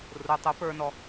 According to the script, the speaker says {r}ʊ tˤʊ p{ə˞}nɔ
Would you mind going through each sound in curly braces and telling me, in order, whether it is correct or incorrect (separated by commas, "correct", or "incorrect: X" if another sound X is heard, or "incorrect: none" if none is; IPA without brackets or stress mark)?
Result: correct, correct